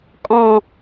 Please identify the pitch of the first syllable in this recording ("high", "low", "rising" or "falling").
falling